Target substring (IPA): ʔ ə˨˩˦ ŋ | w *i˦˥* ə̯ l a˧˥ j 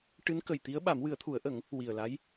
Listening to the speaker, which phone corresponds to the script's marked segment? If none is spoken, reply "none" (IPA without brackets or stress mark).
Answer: i˨˩